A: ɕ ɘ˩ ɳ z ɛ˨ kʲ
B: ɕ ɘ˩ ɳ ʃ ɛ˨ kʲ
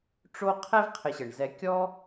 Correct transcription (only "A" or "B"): A